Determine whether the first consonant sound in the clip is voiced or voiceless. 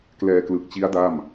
voiceless